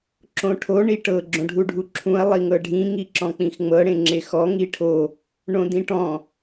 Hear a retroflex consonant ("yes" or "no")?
yes